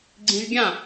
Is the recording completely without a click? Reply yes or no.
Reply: no